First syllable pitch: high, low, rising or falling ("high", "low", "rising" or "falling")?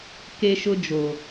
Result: high